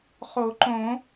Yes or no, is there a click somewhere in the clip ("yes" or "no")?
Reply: yes